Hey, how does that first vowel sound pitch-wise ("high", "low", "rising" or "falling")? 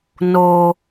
low